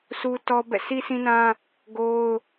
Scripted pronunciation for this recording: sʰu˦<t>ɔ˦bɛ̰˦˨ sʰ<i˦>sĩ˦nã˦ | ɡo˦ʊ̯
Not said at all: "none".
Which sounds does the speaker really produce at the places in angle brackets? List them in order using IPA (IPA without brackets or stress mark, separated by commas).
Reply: t, i˦